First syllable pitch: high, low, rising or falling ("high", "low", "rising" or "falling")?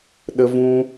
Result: high